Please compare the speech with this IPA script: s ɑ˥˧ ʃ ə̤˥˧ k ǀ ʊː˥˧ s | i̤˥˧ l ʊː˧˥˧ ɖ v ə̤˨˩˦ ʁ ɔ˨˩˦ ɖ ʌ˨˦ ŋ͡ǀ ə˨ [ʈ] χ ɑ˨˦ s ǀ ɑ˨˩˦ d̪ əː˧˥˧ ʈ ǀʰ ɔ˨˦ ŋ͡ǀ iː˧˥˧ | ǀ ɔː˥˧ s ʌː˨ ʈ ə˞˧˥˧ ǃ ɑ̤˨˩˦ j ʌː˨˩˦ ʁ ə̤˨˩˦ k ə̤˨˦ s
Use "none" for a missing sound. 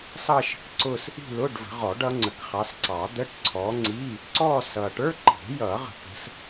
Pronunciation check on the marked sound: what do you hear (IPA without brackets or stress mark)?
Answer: k